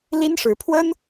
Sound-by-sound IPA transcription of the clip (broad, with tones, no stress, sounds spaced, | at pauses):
l i˥ n ʂ ɻ̩˧˥ pʰ w ə˥ n